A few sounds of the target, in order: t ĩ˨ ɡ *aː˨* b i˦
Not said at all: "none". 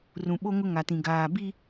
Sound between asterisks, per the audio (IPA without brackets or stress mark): aː˨